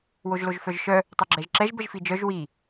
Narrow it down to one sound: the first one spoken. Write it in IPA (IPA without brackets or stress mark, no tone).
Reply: w